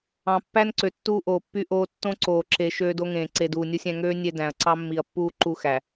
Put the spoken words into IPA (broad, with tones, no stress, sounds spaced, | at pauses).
ɑ̃˨ pː æ˦ n ǀ ø˨ tː uː˦ ʔ oː˨ pː y˦ ʔ oː˦ tː õ˦ ǀ oː˨ ǁ e˨ ʃ øː˦ d o˦ ŋ ẽː˨ ǀ e˨ d uː˨ nʲ u˦ sʲ æ̃˦ ŋ øː˦ nʲ e˦ d æ̃˨ ɐ̯ ǀ ɑ˦ mː i˨ ɐ̯ pː uː˦ ǃ u˦ x æ˨